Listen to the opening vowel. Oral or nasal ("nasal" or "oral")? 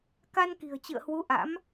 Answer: oral